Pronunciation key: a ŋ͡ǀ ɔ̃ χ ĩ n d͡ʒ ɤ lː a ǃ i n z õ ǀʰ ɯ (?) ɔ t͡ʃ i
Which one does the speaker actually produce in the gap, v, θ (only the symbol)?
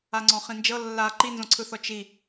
θ